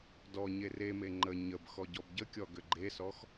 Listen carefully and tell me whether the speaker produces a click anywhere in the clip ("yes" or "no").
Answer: yes